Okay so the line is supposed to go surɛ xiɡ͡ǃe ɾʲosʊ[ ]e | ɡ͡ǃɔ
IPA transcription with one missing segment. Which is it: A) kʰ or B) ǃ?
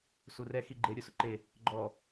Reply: B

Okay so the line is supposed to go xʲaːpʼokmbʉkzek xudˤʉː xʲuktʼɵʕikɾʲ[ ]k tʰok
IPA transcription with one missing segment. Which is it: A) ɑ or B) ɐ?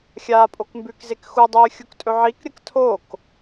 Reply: B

